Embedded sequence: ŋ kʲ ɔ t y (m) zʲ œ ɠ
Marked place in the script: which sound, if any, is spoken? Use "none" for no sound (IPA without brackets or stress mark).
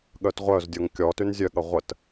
n